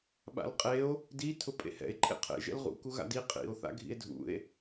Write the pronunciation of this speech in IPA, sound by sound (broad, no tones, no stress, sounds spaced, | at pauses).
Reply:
ɓ a̰ l qʼ e o̯ | d i tʰ ʊ pʼ ḛ h ɛ̰ e̯ ǃʼ ḛ qʰ ḛ ʒ ɛ̰ l ʁ ṵ k u ɣ a̰ d i qʼ ḭ o̯ θ a̰ ɡʱ ḭ e̯ dʱ ṵ e̯